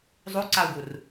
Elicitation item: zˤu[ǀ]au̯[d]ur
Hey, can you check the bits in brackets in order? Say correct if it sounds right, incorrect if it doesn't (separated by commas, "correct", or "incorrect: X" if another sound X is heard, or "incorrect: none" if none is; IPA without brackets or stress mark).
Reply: correct, incorrect: ɡ